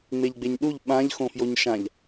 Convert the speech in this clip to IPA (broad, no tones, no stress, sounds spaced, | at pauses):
ŋ͡m e ʎ ɡ͡b e ɲ ɗ u ʎ ɓ ã ʎ x õ f j o ɲ ʃ ã ʎ